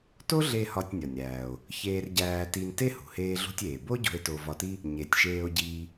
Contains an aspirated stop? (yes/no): no